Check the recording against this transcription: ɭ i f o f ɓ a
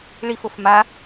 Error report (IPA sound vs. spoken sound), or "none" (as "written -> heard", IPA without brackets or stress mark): ɓ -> m